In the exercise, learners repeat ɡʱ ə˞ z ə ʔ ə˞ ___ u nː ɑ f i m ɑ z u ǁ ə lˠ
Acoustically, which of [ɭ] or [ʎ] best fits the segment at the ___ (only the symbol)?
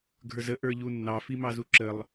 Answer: ʎ